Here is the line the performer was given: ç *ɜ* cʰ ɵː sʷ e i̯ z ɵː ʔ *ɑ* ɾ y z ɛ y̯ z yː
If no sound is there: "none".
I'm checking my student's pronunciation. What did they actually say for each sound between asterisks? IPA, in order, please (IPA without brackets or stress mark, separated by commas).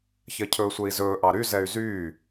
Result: ɜ, ɑ